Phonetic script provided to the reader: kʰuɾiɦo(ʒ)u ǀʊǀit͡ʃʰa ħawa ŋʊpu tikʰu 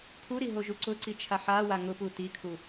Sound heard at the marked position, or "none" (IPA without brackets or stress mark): ʒ